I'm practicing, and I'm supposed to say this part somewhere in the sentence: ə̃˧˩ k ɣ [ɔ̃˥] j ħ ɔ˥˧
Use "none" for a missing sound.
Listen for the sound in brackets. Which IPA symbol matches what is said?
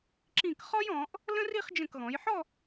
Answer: ɔ̃˩˧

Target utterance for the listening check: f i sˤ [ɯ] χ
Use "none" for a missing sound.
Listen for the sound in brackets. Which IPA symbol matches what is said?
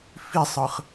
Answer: ɯ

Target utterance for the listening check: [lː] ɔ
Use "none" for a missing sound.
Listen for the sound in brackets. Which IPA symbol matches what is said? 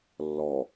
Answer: lː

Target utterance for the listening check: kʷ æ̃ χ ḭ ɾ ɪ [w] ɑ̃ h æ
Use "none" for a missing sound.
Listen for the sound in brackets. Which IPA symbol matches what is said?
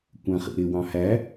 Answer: w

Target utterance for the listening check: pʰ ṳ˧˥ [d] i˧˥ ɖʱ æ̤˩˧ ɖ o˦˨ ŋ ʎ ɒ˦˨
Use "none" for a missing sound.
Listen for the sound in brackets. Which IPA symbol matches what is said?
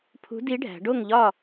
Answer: d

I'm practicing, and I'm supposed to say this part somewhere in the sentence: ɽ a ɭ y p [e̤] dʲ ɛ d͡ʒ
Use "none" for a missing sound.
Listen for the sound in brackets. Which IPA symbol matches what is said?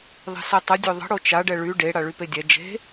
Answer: e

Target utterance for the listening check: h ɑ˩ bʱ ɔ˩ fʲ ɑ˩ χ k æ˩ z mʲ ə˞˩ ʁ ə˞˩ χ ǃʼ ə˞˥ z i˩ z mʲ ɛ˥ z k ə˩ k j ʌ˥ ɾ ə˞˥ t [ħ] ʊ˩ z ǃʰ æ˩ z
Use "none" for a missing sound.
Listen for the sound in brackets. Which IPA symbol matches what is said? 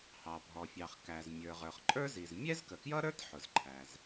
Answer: ħ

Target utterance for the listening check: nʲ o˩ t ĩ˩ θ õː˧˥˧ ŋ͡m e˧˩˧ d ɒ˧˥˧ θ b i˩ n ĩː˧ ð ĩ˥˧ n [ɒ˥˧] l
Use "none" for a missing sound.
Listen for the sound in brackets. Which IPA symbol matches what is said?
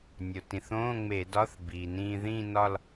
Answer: ɒ˥˧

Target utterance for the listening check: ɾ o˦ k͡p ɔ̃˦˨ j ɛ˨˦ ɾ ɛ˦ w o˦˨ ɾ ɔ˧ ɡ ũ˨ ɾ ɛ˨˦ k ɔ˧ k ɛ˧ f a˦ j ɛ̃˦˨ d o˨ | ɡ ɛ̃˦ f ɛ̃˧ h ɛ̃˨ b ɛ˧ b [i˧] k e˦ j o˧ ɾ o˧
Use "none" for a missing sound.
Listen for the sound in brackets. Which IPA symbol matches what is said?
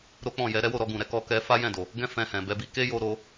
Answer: i˧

